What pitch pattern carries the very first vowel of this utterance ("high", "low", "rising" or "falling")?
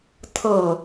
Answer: low